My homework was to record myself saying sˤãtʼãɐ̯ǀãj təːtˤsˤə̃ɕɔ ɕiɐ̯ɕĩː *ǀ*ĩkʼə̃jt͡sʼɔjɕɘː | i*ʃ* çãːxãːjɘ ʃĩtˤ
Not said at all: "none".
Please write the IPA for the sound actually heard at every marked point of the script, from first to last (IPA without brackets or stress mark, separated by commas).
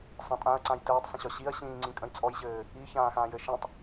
ŋ͡ǀ, none